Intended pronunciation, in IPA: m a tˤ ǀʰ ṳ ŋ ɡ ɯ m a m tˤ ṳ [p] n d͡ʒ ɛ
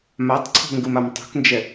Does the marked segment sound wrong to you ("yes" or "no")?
yes